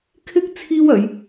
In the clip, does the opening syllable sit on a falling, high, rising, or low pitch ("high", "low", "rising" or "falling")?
high